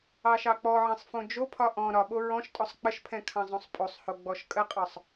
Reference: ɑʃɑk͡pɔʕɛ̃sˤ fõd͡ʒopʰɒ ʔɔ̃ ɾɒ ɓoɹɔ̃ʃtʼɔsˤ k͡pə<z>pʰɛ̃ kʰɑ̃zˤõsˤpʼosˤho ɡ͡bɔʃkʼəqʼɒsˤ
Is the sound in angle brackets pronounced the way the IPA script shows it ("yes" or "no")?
no